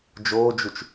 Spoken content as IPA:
d͡ʒ oː d͡ʒ u t͡ʃ

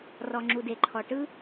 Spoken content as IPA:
r ɔ˩ ŋ͡ǁ u˩ d e˩ ǃʰ ɔ˩ ʈ ɯ˥

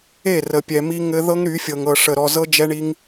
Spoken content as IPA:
e˦˨ r ə˨ pʲ ɛ˨ m i˦ ŋ ɘ˦ ð ɤ˦ ŋ ɾ y˨˦ fʲ ɤ˨ ŋ ɤ˨ ʂ ə˨ ɾ ɔ˨ z ɤ˦ d͡ʒ ɛ˦ ɳ i˦ ŋ

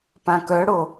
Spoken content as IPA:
p ã k œ ɽ o

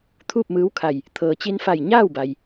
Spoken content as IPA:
t̪ʰ uː˥˨ p̚ m ɯː˧˥ w kʰ a˧˩ j | t̪ʰ ɤː˩ t͡ɕ i˧ n f a˧˩ j ɲ aː˥˨ w b a˩ j

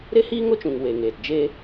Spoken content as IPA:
ɾ e˦ h iː˦ ŋ o˦ t͡ʃ ũ˨ ŋ w e˨ ŋ eː˨ t d͡ʒ e˦

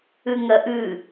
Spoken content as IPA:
ʉ ŋ ɐ ʔ ʉ

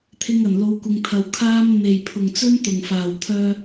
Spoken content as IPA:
t̪ʰ ɪ˧ ŋ ɐ˨˩ n l o˨˧ w kʷ ɪ˨ ŋ t̪ʰ ɐ˨ w kʰ aː˧ m n̪ e˨˩ j pʰ ʊ˨˩ ŋ t͡s ɵ˥ n t̪ ʊ˨˩ ŋ f aː˨˩ w t̪ʰ œː˧

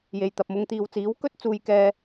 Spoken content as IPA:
j e˨ j t̪ ɐ˨ p̚ m ʊ˨ ŋ t̪ iː˨ w t͡s iː˨˥ w k ɵ˥ t̚ t͡s uː˧ j k ɛː˧

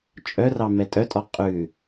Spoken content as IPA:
t͡ʃʼ œ r ɑ m ɛ tʼ œ tʼ ɔ qʼ ʉ

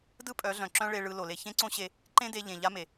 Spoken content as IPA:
d ɯ˦ pʼ œ˨˦ ɮ œ̃˨ ǁ œ̃˦ ɭ e˧ ɭ ɯ˧ l o˨ l e˧ ç ẽ˦ ǀ õ˦ ɕ e˧ | ǃ ẽ˦ d e˧ ʎ ẽ˨ ʎ a˦ m e˨

